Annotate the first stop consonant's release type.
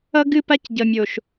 plain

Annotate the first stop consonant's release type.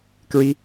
plain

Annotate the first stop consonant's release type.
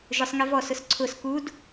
click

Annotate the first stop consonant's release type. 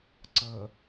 click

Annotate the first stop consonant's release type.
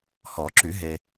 click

